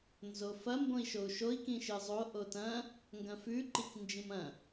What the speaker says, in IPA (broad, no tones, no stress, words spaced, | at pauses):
nzofɐ mbõi̯ʃou̯ʃoi̯ kĩʃɨzˤo ʔotɐ̃ | ŋɡɐ̃fʉ ǃiknd͡ʒĩmɐ̃